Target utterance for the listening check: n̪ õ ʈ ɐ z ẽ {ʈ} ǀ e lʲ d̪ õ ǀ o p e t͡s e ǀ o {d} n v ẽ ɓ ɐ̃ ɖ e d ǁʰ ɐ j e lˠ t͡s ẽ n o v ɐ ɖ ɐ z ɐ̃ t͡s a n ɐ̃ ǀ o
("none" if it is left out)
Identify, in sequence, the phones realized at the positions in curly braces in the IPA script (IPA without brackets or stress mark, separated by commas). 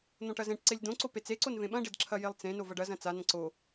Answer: ʈ, none